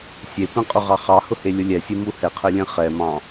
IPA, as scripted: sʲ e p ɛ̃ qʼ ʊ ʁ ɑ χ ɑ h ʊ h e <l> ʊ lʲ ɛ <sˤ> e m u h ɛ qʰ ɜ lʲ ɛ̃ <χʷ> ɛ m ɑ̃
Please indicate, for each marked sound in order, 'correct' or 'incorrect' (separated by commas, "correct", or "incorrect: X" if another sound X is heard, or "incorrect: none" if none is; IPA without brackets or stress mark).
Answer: incorrect: lʲ, incorrect: sʲ, incorrect: χ